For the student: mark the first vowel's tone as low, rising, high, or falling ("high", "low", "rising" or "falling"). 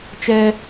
high